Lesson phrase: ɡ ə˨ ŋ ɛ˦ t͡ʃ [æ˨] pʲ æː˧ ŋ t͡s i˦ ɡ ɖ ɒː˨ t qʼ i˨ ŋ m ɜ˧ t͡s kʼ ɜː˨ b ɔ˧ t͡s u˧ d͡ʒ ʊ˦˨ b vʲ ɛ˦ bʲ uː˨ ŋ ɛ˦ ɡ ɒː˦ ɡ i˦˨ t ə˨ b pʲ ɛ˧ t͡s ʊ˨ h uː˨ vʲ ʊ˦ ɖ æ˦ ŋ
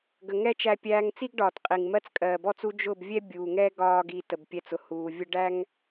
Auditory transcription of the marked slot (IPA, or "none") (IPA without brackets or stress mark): æ˧